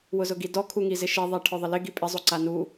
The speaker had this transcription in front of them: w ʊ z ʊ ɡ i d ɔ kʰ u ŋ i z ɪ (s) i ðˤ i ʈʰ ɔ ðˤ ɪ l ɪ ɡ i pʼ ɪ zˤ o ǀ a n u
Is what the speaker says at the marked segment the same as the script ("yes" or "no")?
no